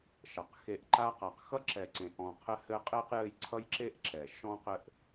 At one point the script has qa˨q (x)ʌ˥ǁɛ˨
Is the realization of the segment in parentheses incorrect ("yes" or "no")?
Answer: no